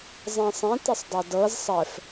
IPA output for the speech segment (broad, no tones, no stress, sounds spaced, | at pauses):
zˤ ĩ sˤ ẽ t e sˤ dˤ æ d ɤ z sˤ ɛ f